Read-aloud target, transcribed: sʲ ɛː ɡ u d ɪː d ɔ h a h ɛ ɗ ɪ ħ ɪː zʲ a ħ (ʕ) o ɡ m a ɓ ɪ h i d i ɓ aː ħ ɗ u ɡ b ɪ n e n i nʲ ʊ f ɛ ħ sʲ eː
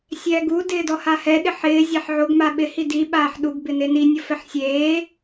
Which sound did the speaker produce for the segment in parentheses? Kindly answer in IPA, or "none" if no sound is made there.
ʕ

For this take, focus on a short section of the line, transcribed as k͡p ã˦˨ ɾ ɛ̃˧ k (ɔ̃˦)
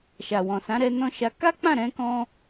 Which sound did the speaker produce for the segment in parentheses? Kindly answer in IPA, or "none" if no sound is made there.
ɔ̃˦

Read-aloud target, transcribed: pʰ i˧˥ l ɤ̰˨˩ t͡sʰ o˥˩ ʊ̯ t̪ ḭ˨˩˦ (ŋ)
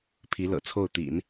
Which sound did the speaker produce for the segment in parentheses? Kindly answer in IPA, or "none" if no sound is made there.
n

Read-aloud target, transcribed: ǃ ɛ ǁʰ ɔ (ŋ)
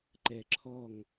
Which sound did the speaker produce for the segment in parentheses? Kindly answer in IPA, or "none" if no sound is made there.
ŋ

